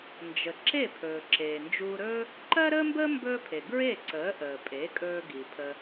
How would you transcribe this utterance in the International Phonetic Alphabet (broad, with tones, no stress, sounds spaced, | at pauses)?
n d͡ʒ ə˩ ǁ e˥˩ pʰ ɵː˩ ǁ eː˩ n d͡ʒ uː˧ ɾ ɵː˥ | ǃ ɜ˥ ɾ əː˥ m b əː˥ m b ɵː˥ pʰ e˩ ɡ ɹ e˥˩ ǀ əː˩˥ ʔ əː˩ pʼ e˩˥ kʼ ɵː˧ ɡ i˩ pʰ ə˧